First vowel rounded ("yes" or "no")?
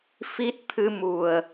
no